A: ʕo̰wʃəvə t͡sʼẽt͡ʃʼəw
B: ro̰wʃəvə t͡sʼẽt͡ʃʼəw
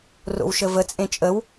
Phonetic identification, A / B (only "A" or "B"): B